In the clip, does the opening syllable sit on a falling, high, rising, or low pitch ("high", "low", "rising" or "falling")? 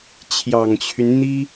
low